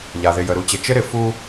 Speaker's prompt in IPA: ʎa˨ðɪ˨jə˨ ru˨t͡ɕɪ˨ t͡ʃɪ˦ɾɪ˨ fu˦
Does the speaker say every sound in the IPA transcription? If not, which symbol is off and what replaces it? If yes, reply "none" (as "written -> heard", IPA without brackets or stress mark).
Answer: r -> ɾ